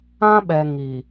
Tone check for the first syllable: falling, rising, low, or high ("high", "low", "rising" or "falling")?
high